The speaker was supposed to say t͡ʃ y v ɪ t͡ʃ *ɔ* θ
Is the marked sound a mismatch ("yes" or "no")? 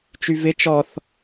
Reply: no